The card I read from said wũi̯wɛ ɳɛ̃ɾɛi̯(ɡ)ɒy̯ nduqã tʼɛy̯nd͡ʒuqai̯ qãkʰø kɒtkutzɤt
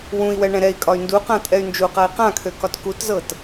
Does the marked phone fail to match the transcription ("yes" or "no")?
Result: yes